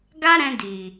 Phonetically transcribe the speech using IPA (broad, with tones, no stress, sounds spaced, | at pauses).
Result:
ɡ a˦ ɾ ɛ̃˧ d i˨